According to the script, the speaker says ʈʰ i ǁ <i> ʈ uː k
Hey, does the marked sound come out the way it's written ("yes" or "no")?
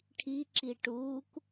yes